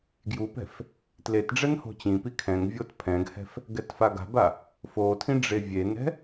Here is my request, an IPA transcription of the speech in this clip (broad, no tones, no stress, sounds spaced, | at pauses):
ɡ j u p ɛ̤ f | t l e t ɖ͡ʐ ɛ n h o̤ t͡ɕ ĩ p i kʰ ɛ̃ ŋ vʲ o t pʰ ɛ̃ ɡ h ɛ̤ f | ɡ ɛ t f a ɡ a̤ b a | f o tʰ ĩ ɖ͡ʐ e vʲ e n ɛ̤